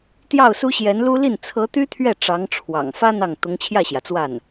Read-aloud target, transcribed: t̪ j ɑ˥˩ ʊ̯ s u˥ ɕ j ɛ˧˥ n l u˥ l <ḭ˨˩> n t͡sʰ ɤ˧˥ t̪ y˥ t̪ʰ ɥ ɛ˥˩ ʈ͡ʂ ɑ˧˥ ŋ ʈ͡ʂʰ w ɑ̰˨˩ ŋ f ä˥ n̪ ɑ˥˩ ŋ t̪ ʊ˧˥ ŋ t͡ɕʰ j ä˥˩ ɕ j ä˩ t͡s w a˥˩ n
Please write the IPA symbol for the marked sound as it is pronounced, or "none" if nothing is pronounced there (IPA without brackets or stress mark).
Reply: i˥˩